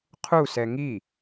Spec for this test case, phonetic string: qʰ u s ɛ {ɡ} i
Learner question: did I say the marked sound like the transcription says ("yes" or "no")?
no